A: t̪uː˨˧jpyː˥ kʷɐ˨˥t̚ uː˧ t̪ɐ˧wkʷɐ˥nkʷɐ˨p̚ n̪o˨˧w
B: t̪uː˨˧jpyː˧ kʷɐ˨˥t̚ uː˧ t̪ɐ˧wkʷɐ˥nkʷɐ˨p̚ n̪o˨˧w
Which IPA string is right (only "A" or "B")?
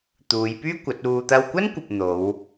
A